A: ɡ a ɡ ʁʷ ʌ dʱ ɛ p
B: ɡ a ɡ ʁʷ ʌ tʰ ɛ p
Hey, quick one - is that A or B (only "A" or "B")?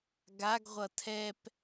B